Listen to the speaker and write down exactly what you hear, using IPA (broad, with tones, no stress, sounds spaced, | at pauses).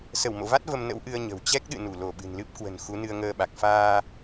s ə˧˩ w m o̰˧˨ v a˦˥ t̚ v ə˧ m n ə̰˧˥ w ʔ ɨ˧ ə̯ ɲ ə̤˨˩ w t͡ɕ ɛ˦˥ k̚ ɗ ɨ̰˧˨ n u˧˩ l o˧˩ ɓ ɨ̤˨˩ n l ɨ˦˥ p̚ k w ə̤˨˩ n x u˨˦ n ɨ˧ ə̯ ŋ əː˧ ɓ a˨˩ k̚ f aː˧